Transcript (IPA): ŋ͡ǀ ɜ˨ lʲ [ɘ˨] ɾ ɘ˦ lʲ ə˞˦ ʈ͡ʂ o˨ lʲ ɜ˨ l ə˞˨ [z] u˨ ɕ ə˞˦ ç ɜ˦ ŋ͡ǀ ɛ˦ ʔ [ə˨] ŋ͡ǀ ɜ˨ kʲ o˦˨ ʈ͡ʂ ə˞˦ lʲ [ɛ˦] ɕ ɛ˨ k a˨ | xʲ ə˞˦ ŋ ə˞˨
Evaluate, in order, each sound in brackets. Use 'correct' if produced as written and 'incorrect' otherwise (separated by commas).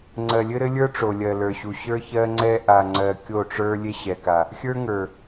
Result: incorrect, incorrect, incorrect, incorrect